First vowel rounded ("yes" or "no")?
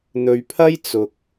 yes